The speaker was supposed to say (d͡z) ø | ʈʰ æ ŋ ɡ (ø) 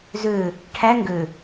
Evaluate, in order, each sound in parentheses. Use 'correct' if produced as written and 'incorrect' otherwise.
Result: incorrect, correct

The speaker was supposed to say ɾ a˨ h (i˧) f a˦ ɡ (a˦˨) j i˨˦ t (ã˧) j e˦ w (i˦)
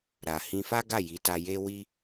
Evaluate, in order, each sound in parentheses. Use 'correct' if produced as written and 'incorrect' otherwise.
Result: incorrect, correct, incorrect, correct

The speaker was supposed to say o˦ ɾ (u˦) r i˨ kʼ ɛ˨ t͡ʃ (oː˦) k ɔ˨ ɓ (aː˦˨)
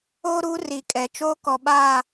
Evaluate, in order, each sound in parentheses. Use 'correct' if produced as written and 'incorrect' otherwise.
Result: correct, correct, correct

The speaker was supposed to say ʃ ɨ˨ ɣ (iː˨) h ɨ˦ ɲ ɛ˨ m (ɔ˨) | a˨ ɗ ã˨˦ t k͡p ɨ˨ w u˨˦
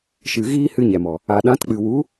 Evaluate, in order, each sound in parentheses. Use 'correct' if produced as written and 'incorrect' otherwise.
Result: incorrect, correct

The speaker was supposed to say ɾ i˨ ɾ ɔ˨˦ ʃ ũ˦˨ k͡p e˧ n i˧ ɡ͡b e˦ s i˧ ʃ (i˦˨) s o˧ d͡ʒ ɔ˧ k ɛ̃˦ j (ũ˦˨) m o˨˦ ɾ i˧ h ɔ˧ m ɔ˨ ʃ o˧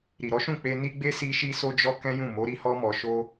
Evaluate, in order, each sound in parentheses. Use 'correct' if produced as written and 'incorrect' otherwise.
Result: incorrect, correct

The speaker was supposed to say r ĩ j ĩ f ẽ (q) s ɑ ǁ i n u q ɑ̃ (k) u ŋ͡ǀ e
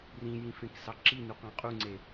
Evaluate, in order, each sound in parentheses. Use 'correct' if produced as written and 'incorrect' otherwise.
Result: incorrect, incorrect

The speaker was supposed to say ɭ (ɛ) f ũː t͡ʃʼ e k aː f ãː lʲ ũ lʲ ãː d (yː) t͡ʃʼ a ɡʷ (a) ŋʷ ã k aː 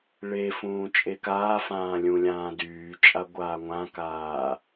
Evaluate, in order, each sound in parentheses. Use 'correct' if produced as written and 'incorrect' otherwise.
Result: incorrect, correct, incorrect

